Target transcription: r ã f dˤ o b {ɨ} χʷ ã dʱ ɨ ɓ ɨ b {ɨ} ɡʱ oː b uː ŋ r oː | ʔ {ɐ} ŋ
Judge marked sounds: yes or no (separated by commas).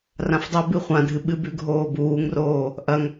yes, no, yes